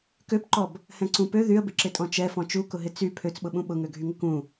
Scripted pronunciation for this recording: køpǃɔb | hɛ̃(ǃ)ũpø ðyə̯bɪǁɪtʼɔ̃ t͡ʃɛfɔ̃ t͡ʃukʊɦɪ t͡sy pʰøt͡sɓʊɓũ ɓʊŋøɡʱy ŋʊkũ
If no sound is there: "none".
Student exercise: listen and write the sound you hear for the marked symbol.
ǀ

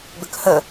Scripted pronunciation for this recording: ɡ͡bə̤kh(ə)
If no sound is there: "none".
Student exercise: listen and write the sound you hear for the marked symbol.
ə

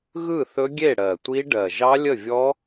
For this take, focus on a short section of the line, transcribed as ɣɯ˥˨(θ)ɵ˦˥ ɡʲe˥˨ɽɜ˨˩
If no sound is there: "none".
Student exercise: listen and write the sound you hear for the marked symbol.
θ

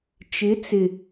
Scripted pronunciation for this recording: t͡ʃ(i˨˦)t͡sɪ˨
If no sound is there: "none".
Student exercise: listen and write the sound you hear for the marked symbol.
ɪ˨˦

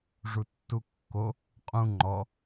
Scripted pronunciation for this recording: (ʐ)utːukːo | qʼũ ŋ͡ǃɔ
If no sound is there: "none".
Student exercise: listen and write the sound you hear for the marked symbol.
ʐ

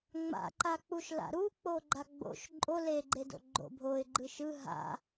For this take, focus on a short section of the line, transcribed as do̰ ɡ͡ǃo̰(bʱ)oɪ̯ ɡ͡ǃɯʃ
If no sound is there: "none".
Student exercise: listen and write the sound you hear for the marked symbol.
bʱ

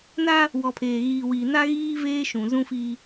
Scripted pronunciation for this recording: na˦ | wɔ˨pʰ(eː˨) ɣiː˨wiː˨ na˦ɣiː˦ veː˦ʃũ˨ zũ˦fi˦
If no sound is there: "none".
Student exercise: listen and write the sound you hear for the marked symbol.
eː˨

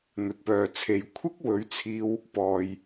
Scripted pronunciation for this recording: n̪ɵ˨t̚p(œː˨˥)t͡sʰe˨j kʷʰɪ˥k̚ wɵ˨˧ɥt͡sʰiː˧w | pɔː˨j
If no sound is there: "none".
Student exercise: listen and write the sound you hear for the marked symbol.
œː˨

